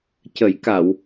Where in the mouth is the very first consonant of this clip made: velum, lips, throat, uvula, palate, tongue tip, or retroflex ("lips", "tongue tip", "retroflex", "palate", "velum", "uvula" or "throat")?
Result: palate